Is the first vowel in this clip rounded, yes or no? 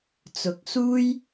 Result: yes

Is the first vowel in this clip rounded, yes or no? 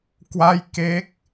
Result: no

